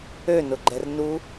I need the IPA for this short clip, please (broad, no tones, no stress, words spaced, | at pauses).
ønʊɡ͡ǃɛr nu